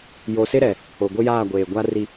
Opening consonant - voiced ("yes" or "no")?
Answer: yes